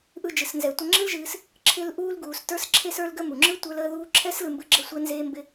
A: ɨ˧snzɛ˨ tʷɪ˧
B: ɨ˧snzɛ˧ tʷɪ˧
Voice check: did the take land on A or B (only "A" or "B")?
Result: B